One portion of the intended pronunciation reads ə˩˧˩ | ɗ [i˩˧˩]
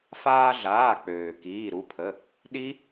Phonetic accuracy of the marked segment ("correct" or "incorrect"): incorrect